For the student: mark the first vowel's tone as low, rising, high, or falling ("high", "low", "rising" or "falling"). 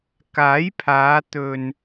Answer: rising